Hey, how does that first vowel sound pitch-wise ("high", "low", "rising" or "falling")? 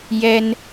high